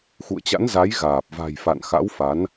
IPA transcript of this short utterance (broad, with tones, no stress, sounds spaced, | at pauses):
x ṵ˧˨ ə̯ t͡ɕ a̰˧˥ n z a˨˦ j ɣ aː˨˩ p̚ v a̤˨˩ j f a̰˧˨ n x a̰˧˥ w f a˨˦ n